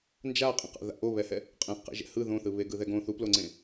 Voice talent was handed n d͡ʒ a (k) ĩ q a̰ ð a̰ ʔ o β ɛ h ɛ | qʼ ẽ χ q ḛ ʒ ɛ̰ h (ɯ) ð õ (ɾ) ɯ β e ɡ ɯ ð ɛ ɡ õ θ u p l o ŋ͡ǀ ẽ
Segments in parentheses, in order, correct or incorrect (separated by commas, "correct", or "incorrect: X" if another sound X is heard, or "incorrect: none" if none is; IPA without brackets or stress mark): incorrect: qʼ, correct, incorrect: θ